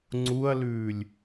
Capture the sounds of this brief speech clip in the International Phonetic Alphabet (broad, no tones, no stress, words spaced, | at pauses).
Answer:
ŋ͡ǀuɐ̯lʉːlʲ